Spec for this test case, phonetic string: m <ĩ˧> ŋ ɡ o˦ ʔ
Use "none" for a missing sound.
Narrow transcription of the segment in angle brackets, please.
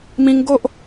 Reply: ĩ˧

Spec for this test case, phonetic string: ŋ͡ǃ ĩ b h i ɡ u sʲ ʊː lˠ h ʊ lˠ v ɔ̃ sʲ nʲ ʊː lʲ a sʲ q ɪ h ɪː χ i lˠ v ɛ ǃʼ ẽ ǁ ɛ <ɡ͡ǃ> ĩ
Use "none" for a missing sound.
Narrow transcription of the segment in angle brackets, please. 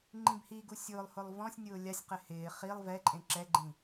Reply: ɡ͡ǃ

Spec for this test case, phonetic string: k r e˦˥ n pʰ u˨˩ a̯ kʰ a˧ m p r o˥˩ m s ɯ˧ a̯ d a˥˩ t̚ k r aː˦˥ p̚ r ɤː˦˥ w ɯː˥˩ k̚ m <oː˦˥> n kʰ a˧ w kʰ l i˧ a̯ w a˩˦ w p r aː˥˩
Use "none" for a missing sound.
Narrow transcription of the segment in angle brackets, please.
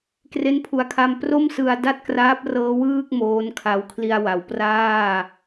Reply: oː˦˥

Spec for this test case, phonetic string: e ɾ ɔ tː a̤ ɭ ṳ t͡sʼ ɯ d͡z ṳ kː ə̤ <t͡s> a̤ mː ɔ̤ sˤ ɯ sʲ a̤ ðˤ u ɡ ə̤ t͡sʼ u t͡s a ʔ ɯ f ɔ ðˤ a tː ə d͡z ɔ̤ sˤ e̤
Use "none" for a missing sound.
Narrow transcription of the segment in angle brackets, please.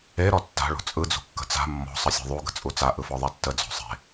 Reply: t͡s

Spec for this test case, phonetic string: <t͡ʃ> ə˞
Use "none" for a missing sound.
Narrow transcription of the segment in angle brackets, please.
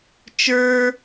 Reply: t͡ʃ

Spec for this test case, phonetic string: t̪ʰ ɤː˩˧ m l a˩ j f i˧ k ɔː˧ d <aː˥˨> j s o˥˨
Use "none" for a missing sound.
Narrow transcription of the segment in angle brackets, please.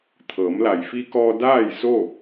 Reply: aː˥˨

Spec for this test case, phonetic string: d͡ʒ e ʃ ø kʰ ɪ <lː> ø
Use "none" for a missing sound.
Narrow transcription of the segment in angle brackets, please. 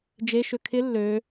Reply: lː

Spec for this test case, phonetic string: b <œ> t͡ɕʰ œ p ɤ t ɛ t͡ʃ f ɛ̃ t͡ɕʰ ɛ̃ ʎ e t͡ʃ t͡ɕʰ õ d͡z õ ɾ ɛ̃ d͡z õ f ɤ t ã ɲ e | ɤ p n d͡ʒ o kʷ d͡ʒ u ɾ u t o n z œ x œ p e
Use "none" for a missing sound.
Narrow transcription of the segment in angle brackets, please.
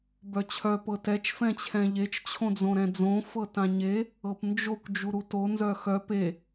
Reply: œ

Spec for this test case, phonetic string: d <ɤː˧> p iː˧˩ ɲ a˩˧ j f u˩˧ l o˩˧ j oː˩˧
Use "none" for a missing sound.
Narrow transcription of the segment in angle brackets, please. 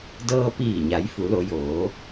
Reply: ɤː˧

